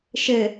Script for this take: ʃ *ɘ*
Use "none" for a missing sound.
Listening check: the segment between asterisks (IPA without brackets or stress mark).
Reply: ɘ